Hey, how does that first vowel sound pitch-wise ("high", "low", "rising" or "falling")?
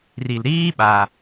low